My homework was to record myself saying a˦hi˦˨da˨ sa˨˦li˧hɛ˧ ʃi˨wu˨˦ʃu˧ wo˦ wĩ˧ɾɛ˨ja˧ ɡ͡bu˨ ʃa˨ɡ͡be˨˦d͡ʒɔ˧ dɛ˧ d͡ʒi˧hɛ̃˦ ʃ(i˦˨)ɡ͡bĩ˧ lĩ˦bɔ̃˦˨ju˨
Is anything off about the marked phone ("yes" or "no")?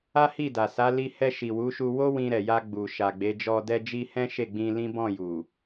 yes